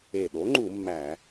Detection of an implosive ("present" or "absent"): present